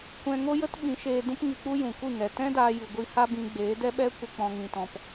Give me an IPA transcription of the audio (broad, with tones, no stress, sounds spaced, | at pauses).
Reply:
kʷ ɛ̃˧ ŋ o˦ j ə˦ t ɓ ĩ˨˦ ʃ eː˧ d ũ˦ p ŋ i˧ k͡p u˦ j ũ˨ kʷ ɨ˦˨ ŋ ɛ˨ t ɛ̃˦ d aː˧ j ɨ˨ ɡʷ i˧ h a˦ b ĩ˧ ɡ͡b eː˨˦ d ɛ˦ ɓ ɛ˦ kʷ ə˧ k͡p ɔ̃˧ ŋ ĩ˧ t ɔ̃˧ p